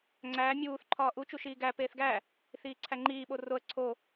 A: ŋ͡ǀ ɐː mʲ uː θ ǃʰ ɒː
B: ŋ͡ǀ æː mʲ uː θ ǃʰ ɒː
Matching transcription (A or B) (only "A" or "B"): B